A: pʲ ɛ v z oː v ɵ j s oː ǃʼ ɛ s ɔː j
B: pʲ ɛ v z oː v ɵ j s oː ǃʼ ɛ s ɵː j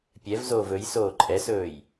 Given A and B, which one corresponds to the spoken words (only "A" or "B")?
B